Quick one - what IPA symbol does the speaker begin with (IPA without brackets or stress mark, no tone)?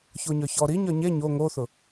ç